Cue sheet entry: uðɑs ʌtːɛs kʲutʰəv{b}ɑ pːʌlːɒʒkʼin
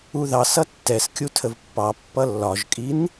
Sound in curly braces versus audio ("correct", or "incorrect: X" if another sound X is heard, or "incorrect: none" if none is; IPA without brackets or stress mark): incorrect: pː